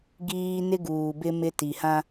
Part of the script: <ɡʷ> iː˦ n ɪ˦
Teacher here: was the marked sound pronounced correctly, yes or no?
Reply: no